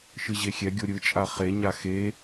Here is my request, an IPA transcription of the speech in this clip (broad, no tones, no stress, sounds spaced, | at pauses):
ʃ ɯ ʑ e xʲ ɛ ɡʲ o ɾʲ ɯ t͡ʃʼ a χ e ɲ a x e